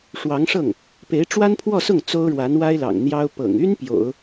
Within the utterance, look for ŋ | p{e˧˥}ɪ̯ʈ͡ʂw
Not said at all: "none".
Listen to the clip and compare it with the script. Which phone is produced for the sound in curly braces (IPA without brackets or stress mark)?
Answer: e˧˥